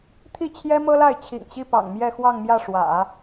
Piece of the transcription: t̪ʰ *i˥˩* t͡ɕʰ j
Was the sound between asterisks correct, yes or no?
yes